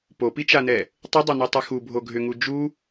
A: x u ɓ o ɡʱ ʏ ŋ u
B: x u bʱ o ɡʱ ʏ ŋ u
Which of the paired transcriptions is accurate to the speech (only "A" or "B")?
B